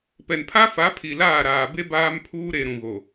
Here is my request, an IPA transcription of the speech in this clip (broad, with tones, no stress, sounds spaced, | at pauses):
p ɛ˨ n pʰ a˦ f a˨˦ pʰ i˨ l aː˦˨ ɾ aː˨ b e˦ b aː˦ m pʰ uː˦ ɾ e˨ ɾ ũ˨ ɣ o˨